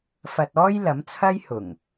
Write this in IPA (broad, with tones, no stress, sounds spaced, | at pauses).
f ɐ˧ t̚ ɔː˥ j l ɐ˨˥ m t͡sʰ ɐ˥ j h ʊ˨˩ ŋ